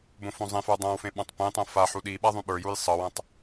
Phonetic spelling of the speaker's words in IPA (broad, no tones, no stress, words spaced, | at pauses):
bõfõzˤẽfə˞ dˤãwfẽ ɓãtˤpẽtˤõ fa ħuɗiɓa ðˤũɓə˞juj sˤɤwãtˤ